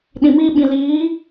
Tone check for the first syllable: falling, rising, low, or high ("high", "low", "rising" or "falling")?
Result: low